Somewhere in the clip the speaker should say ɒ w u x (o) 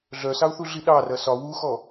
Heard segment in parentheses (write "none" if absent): ɔ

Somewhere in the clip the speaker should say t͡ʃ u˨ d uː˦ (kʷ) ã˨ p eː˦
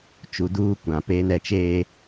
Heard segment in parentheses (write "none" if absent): kʷ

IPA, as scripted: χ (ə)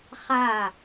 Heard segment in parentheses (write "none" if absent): a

